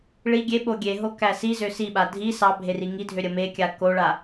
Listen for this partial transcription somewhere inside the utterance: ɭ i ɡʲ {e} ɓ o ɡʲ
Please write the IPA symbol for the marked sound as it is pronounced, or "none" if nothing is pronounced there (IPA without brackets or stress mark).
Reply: e